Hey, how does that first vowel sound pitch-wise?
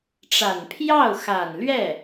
low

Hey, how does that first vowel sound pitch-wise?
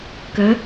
rising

